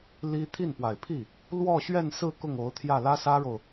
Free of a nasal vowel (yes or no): yes